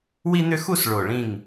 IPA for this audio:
w i˥ n̪ ʏ˥ x u˥˧ s ɭ o˧˩ ɭ ĩ˧˩ ŋ

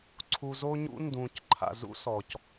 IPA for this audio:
ǀʰ u˨ z o˦ ɲ ṵ˦ n d ũː˩ c ǃʰ a̰˩ z ṵ˦ s ɔ˩ c

